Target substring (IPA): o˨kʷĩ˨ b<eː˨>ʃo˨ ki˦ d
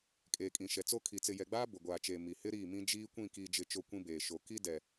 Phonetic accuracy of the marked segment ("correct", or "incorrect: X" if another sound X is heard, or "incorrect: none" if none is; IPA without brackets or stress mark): correct